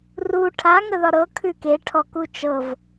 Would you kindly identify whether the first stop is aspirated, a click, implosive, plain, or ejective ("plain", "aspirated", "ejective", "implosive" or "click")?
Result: aspirated